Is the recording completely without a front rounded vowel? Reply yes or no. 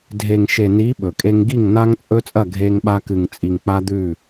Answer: yes